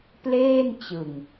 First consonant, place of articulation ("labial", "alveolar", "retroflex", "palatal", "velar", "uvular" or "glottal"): labial